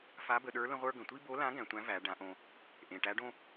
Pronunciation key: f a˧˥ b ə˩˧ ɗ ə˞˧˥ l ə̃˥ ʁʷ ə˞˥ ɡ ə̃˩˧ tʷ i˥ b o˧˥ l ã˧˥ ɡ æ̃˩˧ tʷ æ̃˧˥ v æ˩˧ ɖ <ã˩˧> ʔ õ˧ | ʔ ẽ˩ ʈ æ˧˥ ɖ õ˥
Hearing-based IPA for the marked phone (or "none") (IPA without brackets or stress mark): ã˩˧